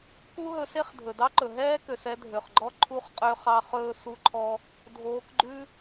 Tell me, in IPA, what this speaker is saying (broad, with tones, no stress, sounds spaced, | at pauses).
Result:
k u˥ ɦ ɵ˧ s e˥ χ dʱ ɵ˩ d ɑ˥ ǃ ɵ˩ ɦ ɛː˥ k ø˩ s ɛ˧ dʱ ø˩ χ ɡ͡ǃ ɔ˥ ǃʰ u˧ χ qʼ ø˧ χ ɑ˧ χ ɵː˥ s u˥ ǃʰ ɔ˥ | dʱ oː˧ k ɡ͡ǃ ʉ˥